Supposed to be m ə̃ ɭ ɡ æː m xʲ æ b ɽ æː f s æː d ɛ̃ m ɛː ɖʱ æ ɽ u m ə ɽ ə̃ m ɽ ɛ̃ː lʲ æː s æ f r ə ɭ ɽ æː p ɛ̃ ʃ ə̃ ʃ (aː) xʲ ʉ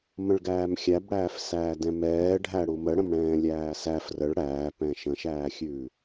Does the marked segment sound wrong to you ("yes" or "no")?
yes